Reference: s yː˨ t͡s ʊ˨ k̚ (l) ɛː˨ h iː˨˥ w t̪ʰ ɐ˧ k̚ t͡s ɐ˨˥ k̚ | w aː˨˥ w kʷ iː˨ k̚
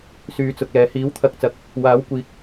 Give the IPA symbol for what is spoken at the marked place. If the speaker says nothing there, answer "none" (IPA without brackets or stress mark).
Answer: l